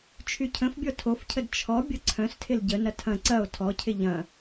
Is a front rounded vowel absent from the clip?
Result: no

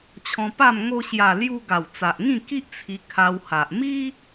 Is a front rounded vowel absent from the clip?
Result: yes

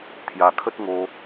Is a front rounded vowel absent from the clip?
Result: yes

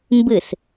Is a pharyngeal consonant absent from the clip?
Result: yes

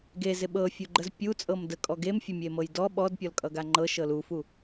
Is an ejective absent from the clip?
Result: no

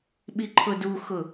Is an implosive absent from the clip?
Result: no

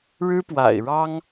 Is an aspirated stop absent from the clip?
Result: yes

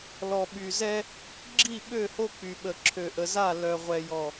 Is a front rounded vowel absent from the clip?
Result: no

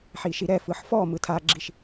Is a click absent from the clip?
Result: no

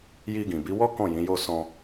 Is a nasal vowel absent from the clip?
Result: no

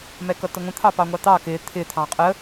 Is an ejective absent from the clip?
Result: no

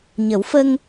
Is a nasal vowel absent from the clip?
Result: yes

